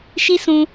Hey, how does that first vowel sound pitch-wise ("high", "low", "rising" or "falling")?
high